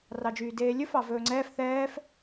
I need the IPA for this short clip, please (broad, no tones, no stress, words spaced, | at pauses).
rɑd͡ʒyːdeːlʲɵf ɑvɵːŋ͡ǀɛːf θɛːf